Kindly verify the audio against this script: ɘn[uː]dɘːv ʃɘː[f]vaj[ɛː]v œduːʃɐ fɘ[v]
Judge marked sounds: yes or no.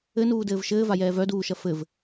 yes, no, yes, yes

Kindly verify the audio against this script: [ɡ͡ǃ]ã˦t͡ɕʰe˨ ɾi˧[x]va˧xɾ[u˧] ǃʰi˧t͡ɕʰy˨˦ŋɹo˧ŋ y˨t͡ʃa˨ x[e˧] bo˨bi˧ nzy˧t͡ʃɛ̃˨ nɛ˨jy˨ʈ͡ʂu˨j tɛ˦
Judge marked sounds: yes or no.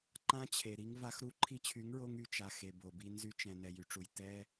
no, no, yes, no

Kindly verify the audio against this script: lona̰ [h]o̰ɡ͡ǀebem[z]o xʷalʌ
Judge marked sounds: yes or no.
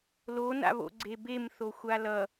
no, no

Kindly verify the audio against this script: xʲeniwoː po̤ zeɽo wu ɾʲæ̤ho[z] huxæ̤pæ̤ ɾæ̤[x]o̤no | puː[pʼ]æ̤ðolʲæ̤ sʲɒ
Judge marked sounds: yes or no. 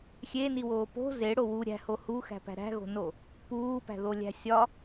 no, no, no

